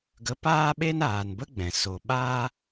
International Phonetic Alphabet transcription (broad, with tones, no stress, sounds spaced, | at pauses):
ɡ ə˧ p aː˦ ɓ e˦ n aː˨ n b ə˦ ɡ͡b ɛ̃˨ s o˨ ɓ aː˦